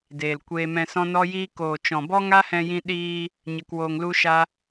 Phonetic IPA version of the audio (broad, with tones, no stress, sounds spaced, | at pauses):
d eː˨ l kʷ eː˧ m ɛ̃˧ s ɔ̃˦ n ɔ˦ j iː˦ k oː˨ t͡ʃ ɔ̃˨ b ɔ˦ ŋ a˦ h ɛ̃˧ j ĩ˧ ɗ iː˧ | ɲ ə˧ k w oː˧ ŋ l u˦ ʃ a˦